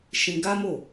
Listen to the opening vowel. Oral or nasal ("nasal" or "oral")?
nasal